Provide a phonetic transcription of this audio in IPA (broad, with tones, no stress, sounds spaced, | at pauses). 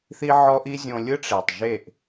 θ i˦ ʕ ɔ˦ ʔ i˦ zʲ õ˧ lʲ ɯ˦ ʈ͡ʂ e˨ tˤ ʒ e˦˨ ʔ